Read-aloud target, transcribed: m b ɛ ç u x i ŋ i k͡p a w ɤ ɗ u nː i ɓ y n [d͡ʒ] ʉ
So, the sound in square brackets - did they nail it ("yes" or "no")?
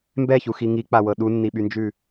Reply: yes